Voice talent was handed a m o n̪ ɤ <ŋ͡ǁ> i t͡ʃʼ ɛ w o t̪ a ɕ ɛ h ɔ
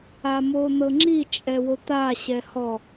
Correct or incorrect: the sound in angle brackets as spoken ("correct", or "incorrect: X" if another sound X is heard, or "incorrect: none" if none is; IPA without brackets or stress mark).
correct